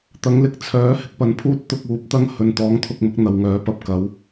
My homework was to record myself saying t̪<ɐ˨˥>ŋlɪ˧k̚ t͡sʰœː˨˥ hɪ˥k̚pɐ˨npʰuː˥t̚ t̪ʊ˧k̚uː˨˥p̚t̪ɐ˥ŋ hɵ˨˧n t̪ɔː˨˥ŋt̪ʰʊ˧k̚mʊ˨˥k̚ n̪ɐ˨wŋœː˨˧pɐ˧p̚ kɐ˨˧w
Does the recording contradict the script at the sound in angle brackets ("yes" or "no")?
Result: no